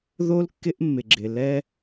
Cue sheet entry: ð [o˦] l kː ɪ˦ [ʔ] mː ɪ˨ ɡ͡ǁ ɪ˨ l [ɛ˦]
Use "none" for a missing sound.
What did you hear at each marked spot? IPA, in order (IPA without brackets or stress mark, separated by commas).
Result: o˦, ʔ, ɛ˦